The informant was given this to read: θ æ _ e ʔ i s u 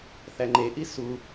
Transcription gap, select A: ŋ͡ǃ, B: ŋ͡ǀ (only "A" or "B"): A